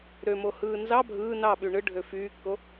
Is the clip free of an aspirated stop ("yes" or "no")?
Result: yes